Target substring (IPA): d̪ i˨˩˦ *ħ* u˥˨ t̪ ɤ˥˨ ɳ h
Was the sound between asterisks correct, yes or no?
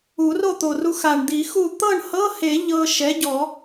no